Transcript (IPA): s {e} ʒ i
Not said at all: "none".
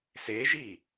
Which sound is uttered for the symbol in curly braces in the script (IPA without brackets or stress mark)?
e